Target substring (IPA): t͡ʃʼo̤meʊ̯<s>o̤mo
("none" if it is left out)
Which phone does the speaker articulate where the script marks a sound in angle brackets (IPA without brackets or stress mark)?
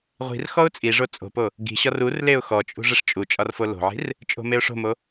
ʂ